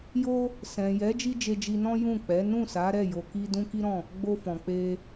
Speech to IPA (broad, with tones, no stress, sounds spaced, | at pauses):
j o˦ | s ɛ̃˨ j ɛ˨˦ d͡ʒ i˦ d͡ʒ e˧ d͡ʒ i˧ n ɔ̃˦ j ũ˦˨ k͡p ɛ˨˦ n ũ˦˨ s a˨˦ ɾ ɛ˦˨ j o˧ k i˦ d ũ˦ k i˦ ɾ ɔ̃˦˨ | ɡ͡b o˧ f ɔ̃˨ k͡p e˧